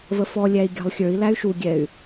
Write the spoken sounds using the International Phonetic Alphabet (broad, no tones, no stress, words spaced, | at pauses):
vəfɔlʲæi̯ ɡʲɑ̤lˠxʲə˞i̯læy̯ ʃuɡʲɛy̯